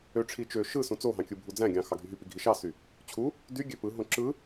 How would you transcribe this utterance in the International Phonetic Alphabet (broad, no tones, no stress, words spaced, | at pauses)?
øʈ͡ʂʰi t͡ʃø ʃɯ sũt͡soɦɑ̃ kʲɯbʱud͡zæ̃ɡʲɑ̃ xɑɡʱyɦypi ɡʱiʃɑsy | t͡ɕʰu | dy ɡʲøpɯɦõ ǁɯ